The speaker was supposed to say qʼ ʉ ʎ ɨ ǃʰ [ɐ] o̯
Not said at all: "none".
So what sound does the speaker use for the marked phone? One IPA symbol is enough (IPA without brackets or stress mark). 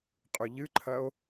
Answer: ɐ